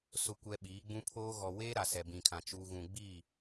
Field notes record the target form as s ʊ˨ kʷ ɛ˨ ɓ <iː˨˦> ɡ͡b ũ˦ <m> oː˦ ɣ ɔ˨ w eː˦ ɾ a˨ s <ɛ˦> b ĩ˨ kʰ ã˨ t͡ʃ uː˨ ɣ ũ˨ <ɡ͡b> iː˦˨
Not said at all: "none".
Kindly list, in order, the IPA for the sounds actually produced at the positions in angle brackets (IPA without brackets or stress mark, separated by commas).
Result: iː˨˦, pʰ, ɛ˨, ɡ͡b